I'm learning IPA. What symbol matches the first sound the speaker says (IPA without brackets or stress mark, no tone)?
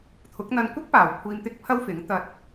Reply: t̪ʰ